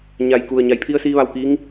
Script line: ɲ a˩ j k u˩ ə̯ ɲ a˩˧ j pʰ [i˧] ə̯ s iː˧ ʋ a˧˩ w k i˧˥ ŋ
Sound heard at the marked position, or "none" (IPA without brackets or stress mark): i˧